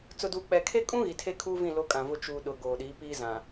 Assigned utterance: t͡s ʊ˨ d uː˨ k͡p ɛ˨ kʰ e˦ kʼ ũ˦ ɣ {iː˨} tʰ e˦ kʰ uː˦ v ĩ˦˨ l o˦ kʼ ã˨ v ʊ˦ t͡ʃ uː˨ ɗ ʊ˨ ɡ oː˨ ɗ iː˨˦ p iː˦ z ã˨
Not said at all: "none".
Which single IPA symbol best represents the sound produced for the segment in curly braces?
i˨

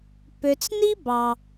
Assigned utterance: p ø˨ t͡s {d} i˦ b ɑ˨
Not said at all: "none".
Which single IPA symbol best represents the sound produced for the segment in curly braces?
n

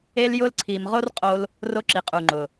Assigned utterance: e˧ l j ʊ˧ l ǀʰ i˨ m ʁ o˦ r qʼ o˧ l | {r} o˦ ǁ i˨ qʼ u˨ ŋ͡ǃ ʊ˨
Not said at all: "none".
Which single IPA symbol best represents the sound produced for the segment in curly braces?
r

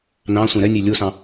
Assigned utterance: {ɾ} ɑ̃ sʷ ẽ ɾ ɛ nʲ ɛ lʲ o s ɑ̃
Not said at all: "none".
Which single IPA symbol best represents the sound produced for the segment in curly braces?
n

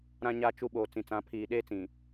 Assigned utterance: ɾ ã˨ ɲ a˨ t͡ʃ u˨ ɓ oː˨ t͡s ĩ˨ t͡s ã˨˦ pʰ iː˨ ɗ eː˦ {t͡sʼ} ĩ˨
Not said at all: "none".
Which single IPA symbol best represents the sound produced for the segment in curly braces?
t͡s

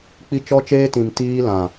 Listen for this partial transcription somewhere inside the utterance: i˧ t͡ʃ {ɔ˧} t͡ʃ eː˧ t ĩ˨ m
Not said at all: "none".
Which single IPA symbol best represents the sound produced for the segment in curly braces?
ɔ˧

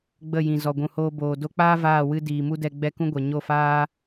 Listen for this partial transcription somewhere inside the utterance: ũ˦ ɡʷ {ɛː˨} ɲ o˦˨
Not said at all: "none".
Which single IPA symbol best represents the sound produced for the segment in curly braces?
ɛ˨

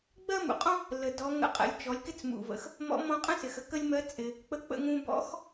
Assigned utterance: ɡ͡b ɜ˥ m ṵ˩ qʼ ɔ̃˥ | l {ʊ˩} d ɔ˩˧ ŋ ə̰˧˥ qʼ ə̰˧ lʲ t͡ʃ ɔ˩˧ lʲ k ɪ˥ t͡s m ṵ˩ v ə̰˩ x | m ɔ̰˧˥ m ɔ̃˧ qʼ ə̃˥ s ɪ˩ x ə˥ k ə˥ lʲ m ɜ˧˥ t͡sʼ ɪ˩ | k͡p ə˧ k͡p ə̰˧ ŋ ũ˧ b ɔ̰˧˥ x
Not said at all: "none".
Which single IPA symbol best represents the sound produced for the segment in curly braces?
ə˩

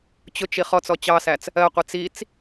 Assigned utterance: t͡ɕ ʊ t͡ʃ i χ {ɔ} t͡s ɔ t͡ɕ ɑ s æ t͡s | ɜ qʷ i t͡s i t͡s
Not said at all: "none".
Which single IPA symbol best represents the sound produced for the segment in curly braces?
ɔ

